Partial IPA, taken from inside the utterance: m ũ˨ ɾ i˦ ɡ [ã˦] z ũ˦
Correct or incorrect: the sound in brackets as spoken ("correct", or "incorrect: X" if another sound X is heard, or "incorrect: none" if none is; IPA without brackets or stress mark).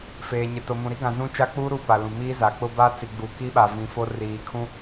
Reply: incorrect: ã˨